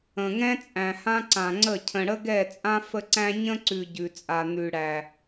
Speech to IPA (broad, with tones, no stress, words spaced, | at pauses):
ə̃˨ŋɛ̃˦t͡sʼæ̃˨hã˦ ǀã˨ŋ͡ǀə˦˨ cʰə̃˨ɽə˦ɡɛ˦˨t͡sʼã˦ fə˦ǀæ̃˦ ɲə̃˦ǀʉ˨ ɟʉ˨t͡sʼa˨ n̪ʉ˨ɽæ˨